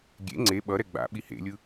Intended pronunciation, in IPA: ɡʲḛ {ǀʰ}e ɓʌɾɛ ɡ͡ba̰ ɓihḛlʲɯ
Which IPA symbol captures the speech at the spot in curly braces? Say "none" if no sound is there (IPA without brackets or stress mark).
ŋ͡ǀ